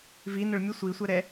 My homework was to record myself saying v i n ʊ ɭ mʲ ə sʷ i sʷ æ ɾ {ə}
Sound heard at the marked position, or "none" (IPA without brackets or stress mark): ɛ